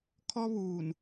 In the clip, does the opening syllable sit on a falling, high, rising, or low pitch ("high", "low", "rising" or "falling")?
high